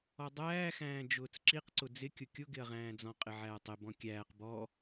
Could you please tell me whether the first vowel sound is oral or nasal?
oral